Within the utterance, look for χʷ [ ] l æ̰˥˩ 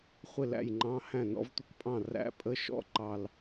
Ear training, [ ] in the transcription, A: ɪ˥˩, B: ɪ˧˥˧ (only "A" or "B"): A